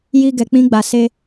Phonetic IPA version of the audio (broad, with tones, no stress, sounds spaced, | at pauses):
j i˧ ɡ ɛ˨ k͡p ĩ˧ ɡ͡b a˨ s e˧